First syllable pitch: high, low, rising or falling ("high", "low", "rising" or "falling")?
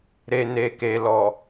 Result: low